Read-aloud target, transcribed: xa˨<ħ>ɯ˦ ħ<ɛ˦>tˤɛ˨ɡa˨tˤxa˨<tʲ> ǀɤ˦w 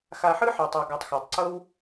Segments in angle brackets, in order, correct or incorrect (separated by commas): correct, incorrect, incorrect